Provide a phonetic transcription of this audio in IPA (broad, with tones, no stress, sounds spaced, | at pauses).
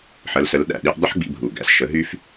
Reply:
ħ ə˨˥ l s ə˨˥ l ɗ æ̰˨˩ ɗ i˧ ʔ dˤ ə˥ ħ ɡ͡b ḭ˧ bʱ u˨˩ ɡ æ̰˧ s ʃ ə˨˥ ɦ y˥ f